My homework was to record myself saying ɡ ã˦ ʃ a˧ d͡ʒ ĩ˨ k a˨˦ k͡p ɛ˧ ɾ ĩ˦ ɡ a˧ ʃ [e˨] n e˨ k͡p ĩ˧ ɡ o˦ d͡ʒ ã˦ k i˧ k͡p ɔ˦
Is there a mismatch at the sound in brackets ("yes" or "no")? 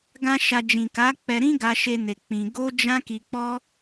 yes